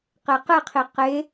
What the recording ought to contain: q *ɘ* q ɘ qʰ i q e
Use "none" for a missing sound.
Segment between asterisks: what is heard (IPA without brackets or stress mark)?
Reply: e